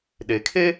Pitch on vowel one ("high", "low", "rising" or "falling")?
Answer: low